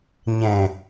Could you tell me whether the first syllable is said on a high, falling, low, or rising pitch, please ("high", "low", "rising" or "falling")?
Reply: low